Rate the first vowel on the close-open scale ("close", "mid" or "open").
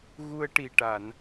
close